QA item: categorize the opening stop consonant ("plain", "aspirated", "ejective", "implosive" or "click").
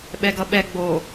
implosive